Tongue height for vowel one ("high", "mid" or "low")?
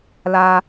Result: low